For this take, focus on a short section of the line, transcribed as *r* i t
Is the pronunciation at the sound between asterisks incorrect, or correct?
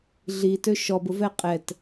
incorrect